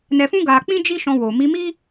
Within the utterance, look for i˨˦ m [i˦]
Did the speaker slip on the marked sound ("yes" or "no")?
no